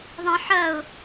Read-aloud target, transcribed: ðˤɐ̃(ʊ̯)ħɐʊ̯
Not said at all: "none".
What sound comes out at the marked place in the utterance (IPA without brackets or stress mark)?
none